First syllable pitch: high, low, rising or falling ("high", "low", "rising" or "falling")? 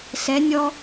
rising